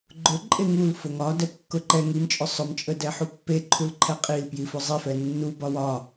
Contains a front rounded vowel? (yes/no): no